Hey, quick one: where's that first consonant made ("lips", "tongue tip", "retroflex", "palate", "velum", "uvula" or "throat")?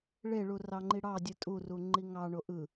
retroflex